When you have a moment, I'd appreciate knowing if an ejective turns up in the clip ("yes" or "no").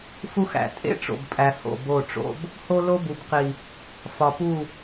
yes